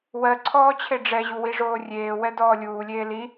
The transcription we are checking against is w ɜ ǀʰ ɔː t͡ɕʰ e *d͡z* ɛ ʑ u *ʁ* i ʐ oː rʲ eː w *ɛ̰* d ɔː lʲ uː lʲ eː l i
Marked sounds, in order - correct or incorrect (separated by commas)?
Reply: incorrect, incorrect, incorrect